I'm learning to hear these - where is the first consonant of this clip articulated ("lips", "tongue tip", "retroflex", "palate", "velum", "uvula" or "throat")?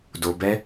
tongue tip